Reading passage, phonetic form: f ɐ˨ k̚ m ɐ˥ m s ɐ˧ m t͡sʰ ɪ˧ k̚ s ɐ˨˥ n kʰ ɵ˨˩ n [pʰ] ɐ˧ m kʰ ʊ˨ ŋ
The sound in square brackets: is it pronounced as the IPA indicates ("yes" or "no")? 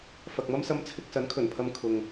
yes